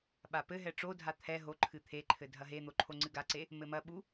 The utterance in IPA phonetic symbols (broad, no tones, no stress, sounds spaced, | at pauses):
ɓ a p ɘ ɦ ɛ ʈ͡ʂ o dʱ a t̪ʰ ɛ ɦ o ǃʰ ɨ t̪ʰ e ǃʰ ɘ dʱ ɐ ɦ e n̪ o ǃʰ o ŋ͡ǀ ɨ ɡ a ǀ e | m ɘ m ɐ ɓ u